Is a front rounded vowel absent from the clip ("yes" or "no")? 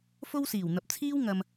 yes